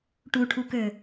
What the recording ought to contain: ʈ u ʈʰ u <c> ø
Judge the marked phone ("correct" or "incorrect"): incorrect